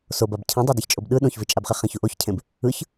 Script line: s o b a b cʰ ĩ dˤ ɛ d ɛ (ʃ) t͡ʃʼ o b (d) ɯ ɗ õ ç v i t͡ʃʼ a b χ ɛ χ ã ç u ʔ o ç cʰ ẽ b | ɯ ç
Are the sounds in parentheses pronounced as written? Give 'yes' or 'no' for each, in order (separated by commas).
no, no